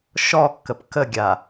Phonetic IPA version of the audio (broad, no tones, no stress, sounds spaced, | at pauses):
ʃ ɔ kː ə p k ə ɡʲ a